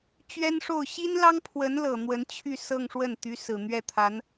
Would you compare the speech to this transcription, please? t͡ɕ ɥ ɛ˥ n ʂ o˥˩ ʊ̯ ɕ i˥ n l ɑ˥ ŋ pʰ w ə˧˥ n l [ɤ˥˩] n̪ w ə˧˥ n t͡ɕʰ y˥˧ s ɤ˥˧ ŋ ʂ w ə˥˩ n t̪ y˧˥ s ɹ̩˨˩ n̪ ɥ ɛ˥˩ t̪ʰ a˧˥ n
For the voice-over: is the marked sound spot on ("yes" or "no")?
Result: no